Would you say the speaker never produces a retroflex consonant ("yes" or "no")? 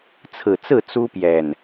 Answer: yes